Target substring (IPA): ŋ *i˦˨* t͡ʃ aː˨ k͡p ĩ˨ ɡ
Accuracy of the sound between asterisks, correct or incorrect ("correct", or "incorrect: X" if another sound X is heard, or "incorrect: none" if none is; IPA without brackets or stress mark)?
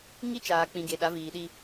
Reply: incorrect: i˦